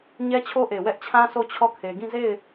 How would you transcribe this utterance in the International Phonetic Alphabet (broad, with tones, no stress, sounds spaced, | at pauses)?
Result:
ɲ ɛ˦ t͡ɕʰ o˦ ʔ e˨ w ɛ˦ ʔ t͡ɕʰ ã˦ sʰ o˦˨ t͡ɕʰ ɔ˦˨ kʰ e˨ ɡ ĩ˦˨ z e˦˨ ɪ̯